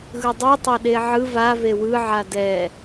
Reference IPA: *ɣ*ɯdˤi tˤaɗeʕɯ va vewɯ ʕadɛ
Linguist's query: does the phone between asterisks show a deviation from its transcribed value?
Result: no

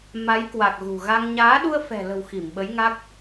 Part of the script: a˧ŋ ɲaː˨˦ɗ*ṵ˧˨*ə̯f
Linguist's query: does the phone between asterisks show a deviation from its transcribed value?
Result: yes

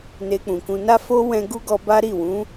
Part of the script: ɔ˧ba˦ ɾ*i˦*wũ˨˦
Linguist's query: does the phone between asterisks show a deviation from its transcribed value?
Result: yes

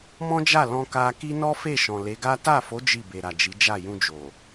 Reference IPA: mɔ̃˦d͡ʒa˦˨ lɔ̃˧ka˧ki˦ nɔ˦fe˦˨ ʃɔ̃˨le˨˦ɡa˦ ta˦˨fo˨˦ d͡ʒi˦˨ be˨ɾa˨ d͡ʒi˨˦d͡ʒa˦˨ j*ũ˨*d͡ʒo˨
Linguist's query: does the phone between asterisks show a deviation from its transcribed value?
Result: yes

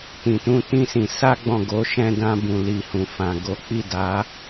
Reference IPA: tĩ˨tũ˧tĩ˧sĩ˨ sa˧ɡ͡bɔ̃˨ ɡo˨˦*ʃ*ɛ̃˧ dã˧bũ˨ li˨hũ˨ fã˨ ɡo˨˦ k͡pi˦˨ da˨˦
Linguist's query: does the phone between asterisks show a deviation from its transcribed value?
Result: no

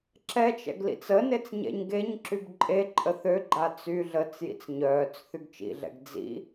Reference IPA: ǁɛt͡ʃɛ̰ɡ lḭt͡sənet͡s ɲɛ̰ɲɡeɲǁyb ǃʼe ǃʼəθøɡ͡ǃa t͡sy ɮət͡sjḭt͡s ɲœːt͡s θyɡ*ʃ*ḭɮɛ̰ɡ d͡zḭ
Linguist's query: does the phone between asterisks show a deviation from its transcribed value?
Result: yes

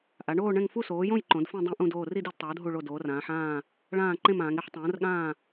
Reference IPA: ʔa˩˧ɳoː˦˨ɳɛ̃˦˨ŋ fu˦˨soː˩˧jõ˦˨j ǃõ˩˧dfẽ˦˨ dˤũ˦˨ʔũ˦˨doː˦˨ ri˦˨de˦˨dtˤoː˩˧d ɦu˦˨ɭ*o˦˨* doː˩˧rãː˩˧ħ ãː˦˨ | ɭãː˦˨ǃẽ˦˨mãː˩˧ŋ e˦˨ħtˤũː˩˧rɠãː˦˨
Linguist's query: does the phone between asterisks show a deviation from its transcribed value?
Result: no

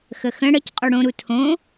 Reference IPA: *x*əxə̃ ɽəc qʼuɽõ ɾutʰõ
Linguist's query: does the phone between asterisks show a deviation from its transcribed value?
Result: no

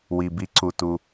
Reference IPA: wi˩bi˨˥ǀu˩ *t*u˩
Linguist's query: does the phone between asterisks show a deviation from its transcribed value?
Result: no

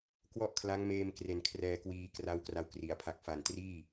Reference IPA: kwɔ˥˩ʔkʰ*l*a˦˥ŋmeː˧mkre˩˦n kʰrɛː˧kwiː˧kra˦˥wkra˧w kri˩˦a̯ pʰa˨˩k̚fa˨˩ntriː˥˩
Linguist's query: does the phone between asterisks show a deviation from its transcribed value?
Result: no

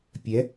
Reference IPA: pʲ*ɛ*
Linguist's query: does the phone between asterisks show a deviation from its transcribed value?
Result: no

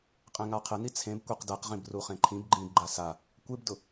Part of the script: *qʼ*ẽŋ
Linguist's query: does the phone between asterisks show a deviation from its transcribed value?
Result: no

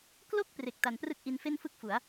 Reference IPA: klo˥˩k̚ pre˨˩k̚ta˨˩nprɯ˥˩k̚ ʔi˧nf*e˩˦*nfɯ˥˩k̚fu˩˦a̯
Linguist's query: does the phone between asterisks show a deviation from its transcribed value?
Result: yes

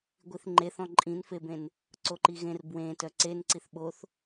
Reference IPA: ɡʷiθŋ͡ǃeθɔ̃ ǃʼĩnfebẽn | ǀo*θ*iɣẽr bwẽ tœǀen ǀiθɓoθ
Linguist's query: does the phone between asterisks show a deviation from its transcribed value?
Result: yes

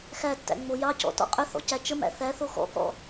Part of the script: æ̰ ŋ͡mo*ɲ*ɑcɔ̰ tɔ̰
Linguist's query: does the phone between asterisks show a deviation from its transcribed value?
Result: yes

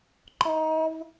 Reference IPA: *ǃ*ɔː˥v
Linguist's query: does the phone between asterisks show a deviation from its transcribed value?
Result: no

